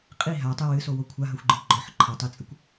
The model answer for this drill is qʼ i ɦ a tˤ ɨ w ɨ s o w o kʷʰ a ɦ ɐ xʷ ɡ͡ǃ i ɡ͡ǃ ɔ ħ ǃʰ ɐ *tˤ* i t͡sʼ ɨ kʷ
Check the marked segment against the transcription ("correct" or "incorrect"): correct